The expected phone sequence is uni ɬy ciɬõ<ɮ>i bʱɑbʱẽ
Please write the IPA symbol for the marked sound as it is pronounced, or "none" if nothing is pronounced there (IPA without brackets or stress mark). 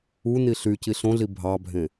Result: ɮ